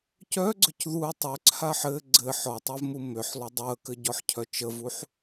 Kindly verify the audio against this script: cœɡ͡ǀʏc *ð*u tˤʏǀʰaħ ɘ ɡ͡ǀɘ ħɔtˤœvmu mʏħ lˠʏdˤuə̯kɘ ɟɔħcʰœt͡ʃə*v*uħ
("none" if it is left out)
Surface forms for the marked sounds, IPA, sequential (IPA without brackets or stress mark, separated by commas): ð, v